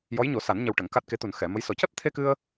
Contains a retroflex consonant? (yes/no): yes